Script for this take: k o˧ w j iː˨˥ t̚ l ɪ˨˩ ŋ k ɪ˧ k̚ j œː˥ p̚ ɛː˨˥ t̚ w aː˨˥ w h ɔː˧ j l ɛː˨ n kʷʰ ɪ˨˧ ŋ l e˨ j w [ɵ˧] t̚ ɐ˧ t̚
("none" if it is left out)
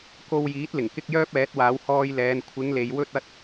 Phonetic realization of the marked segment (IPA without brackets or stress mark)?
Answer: ɵ˧